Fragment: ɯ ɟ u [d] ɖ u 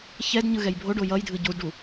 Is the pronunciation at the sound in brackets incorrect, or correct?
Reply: correct